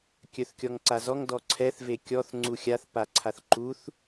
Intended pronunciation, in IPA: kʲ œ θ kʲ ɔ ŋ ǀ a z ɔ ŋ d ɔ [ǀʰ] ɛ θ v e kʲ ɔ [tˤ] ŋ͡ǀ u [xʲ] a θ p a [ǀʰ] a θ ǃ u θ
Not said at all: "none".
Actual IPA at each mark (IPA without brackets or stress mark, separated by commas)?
ǀʰ, θ, xʲ, ǀʰ